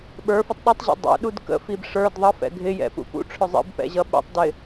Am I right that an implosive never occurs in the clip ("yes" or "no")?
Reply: no